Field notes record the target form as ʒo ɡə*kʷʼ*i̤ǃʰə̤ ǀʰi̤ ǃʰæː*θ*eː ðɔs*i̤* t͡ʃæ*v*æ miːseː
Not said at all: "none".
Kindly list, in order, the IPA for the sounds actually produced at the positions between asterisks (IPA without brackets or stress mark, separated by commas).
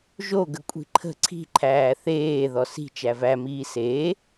kʷʼ, θ, i̤, v